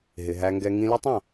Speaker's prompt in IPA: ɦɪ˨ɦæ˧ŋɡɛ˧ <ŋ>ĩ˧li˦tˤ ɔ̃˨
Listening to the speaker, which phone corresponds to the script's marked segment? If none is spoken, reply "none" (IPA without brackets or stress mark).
ŋ